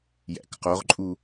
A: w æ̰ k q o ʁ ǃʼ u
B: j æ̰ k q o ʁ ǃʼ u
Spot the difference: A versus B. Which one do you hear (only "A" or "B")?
B